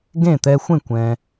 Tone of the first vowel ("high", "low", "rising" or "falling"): falling